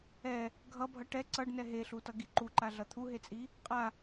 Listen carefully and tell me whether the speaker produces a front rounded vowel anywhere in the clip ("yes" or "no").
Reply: no